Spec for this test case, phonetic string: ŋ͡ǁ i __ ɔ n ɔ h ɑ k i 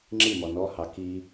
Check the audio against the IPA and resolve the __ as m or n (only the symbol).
m